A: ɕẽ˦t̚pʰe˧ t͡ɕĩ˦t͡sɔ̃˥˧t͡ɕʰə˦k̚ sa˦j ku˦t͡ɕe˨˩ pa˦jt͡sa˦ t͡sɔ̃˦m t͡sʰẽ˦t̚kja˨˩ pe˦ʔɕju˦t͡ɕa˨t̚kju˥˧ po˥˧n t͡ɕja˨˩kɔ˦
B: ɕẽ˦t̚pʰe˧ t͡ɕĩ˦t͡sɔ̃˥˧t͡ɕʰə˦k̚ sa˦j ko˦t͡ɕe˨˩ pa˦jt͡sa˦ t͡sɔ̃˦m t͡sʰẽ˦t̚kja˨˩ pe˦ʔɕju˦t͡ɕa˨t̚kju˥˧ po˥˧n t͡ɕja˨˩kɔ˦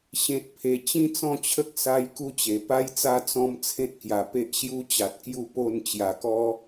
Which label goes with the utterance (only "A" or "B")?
A